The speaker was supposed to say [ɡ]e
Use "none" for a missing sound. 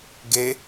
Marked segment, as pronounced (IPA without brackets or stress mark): ɡ